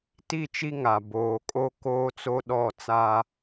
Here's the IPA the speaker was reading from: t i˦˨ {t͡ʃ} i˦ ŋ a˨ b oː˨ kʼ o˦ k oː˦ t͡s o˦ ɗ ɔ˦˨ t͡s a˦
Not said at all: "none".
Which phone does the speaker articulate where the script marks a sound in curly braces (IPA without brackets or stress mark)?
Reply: t͡ʃ